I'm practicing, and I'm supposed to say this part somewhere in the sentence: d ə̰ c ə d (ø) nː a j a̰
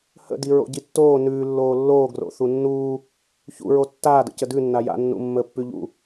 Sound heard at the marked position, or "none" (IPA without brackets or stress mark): ʉ